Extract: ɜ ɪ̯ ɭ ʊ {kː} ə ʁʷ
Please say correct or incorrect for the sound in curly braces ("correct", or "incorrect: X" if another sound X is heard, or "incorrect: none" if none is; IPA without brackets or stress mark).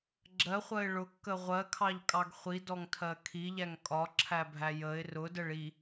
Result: correct